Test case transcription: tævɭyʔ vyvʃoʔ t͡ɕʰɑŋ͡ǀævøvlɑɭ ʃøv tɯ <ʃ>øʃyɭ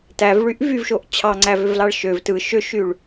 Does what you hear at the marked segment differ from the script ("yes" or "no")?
no